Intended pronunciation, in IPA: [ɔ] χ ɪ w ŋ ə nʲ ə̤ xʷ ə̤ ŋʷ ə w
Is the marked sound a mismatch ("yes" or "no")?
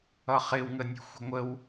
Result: yes